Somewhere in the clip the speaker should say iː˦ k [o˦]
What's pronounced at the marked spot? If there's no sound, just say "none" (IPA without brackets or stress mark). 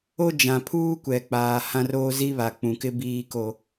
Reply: o˦